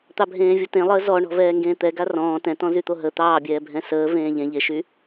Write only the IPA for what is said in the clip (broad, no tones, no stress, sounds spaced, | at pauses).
t̪ ɑ bʱ ẽː vʲ o t ẽ lˠ əː z ɔ ɳ ɔ̤ v ɛː ŋ ɡ ẽː t̪ ɛ ɡ a r ɔ̃ː t ɛ̃ t ɔ̃ z y t̪ o ɦ ə t̪ ɑː bʲ ɛː bʱ ɛ̃ s əː v ẽː ʎ ẽ ʎ e ʃ y